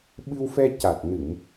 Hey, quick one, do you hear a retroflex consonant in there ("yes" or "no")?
no